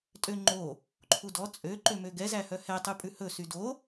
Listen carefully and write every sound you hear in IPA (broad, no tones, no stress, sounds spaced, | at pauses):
tʼ ø ŋ͡ǃ o | ǃʰ u d ɔ t͡sʼ ø ǃ ø m ø ɡ ɛ z æ h œ h ɛ tˤ y pʼ ʉ h ɵ s y d o